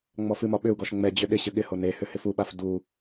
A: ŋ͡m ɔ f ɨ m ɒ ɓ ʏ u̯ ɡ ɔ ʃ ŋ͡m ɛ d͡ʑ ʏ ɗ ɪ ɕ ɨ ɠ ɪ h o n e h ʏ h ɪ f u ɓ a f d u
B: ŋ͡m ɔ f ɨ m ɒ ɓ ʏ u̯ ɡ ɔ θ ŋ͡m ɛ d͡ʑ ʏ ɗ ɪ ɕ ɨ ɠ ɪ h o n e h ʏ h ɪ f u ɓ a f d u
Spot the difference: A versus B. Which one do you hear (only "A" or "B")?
A